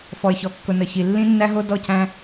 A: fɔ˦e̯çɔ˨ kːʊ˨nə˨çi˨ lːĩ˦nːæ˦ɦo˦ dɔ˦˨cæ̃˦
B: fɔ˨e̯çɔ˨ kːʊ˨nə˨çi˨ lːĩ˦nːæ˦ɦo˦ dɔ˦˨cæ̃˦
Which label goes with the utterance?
B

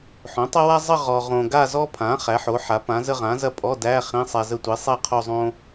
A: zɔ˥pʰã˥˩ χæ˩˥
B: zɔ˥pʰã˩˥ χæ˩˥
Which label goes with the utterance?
B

